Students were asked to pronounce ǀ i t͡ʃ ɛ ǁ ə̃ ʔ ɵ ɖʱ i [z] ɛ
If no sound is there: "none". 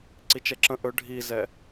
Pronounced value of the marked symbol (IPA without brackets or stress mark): z